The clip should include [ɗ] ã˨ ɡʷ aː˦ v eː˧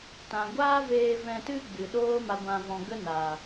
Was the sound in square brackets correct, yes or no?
no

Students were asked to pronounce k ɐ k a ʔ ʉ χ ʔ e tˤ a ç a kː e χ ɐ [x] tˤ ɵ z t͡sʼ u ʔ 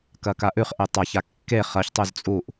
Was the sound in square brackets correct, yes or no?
no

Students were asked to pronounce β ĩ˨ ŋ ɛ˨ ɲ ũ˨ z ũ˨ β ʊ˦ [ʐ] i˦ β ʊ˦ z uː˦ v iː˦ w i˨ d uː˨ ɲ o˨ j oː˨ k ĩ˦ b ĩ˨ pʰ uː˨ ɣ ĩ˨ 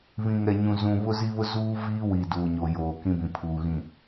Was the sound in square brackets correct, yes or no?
no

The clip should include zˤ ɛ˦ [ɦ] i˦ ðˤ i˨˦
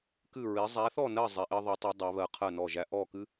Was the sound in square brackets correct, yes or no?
no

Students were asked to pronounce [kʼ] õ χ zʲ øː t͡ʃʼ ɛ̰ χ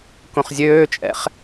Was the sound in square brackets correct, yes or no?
no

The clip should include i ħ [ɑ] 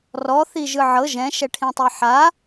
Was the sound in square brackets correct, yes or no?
no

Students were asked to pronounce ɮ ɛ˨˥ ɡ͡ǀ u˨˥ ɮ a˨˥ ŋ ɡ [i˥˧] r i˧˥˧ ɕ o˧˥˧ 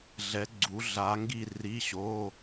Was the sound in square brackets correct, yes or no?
yes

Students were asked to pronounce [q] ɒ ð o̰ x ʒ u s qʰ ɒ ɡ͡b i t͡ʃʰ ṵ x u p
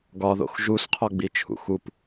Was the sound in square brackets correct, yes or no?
no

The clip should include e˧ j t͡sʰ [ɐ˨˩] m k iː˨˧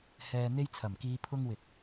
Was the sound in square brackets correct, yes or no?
yes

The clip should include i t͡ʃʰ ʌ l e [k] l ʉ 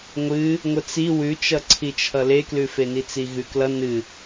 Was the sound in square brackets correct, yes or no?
yes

